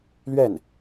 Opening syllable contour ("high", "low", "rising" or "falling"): falling